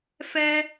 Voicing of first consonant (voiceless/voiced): voiceless